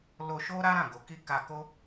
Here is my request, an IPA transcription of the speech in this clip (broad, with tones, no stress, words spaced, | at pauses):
lo˧ʃo˦ ɾa˦ɾã˦˨ɡo˨˦ ki˦ ka˧ko˦